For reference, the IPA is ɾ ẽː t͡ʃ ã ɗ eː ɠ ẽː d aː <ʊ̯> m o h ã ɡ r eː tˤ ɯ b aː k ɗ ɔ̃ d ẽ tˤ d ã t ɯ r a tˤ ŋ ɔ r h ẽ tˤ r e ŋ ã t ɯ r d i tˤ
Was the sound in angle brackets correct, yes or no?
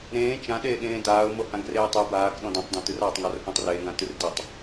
yes